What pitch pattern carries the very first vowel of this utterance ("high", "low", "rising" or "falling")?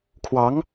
rising